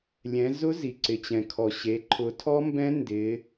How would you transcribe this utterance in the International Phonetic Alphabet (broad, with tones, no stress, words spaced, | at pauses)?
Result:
lʲɛ̃˩˧zʊ˦˥ zi˩ǀɪ˩t͡ɕɛ̃˩kʰɔ˩ ɕe˩˧ ǃʰʊ˩˧tʰɔ˦˥mbɛ̃˦˥ ndɪ˩˧